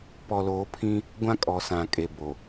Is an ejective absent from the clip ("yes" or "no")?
no